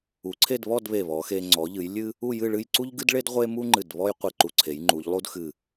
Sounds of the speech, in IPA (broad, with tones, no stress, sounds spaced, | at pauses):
u˩˧ ǀʰ e˥˧ d β ɔ˥˧ d β e˧˩ β ɔ˩˧ x e˧ ŋ͡ǀ ɔ˩˧ ʎ ɨ˩˧ j lʲ ɨ˥ | u˥˧ j ɨ˥˧ ɭ ɨ˥˧ j ǀ u˥ ʎ ɡ ɨ˥ d ɭ e˥ d ʁʷ e˥ m u˥ ŋ͡ǃ ɨ˧˩ d β ɔ˥ j qʷ e˧˩ ǃ u˧ ǀʰ e˩˧ j ŋ͡ǃ u˩˧ ʎ lˠ u˥ d x ɨ˧˩